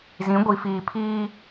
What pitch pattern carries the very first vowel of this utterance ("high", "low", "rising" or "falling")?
rising